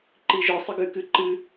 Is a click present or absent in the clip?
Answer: present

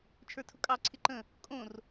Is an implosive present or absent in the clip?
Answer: absent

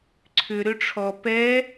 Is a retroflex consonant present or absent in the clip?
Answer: present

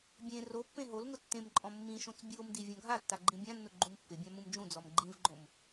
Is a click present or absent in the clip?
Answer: present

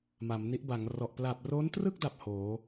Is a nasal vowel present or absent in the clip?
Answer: absent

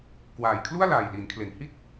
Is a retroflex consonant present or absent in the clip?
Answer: absent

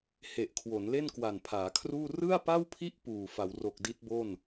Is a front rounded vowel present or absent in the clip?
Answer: absent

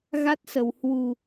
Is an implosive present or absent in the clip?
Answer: absent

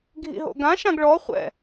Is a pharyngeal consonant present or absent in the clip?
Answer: absent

